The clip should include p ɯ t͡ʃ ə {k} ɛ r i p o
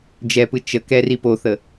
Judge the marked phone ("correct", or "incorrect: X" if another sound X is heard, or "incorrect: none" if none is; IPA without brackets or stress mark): correct